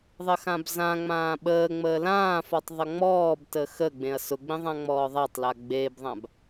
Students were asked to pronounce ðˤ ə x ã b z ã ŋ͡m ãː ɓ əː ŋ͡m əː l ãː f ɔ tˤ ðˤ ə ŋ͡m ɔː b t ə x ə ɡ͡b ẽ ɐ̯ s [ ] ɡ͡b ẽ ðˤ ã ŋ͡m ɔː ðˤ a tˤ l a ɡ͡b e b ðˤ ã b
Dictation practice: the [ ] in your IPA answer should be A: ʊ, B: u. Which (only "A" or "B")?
A